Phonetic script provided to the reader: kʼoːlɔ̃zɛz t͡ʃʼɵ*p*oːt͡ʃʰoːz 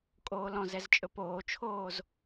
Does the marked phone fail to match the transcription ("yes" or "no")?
no